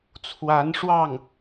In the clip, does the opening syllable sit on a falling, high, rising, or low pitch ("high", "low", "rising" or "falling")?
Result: rising